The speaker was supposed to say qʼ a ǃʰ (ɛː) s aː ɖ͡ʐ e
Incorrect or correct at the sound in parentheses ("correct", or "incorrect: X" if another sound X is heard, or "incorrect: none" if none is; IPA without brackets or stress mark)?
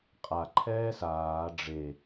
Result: correct